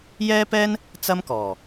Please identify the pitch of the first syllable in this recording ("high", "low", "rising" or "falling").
high